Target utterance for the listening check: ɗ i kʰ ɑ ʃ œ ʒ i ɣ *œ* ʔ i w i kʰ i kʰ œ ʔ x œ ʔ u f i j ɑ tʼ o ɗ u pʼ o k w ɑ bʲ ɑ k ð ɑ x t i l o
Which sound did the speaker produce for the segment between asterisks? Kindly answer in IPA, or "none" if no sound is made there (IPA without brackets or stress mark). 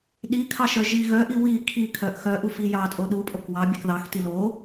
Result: œ